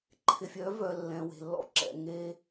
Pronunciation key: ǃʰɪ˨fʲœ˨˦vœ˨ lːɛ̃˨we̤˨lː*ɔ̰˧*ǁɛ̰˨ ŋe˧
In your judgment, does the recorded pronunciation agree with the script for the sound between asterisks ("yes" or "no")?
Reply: yes